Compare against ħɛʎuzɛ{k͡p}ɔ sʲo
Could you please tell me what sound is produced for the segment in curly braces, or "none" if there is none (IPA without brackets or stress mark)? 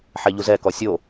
k